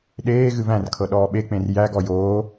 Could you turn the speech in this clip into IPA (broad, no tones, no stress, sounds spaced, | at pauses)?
ɗ eː ɣ ɨ v æ̃ r kʰ ɤ ɗ ɔː ɓ e k͡p ẽ r j æ ɡ ɔ j oː